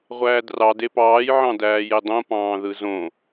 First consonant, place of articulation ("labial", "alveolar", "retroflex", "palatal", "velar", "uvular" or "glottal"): uvular